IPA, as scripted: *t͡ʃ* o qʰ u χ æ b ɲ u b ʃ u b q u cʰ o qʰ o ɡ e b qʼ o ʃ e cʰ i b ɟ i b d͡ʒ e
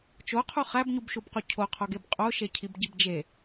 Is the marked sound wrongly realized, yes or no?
no